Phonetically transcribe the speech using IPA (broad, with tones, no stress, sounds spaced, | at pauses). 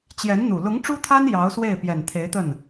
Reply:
t͡ɕ j ɛ˧˥ n n̪ u˨˩ l ʊ˧˥ ŋ ʈ͡ʂ u˥ t̪ʰ a˥ n j ɑ˧˥ ʊ̯ s w e˥˩ ɪ̯ p j ɛ˨˩ n t̪ʰ e˧˥ ɪ̯ t̪ ə˥˩ n